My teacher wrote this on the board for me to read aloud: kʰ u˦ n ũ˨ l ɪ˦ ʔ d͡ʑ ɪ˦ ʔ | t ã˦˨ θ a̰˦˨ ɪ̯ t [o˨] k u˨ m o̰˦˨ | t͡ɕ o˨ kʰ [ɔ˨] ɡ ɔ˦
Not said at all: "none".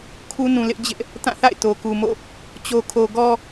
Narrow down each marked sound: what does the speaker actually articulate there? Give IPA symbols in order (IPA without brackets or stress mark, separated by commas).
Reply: o˨, o˨